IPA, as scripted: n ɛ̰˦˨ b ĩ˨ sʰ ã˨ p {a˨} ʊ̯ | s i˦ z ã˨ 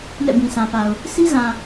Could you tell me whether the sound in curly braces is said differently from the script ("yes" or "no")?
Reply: no